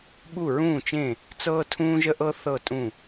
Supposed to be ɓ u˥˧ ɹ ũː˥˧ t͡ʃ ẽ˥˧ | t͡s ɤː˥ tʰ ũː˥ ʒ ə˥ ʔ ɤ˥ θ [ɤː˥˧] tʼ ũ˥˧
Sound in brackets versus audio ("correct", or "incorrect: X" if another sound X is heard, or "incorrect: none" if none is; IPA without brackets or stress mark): incorrect: ɤ˥˧